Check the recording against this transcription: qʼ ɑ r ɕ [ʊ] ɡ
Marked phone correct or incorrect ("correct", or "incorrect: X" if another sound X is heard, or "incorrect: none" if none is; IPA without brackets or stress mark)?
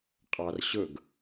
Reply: correct